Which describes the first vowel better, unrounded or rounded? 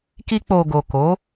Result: unrounded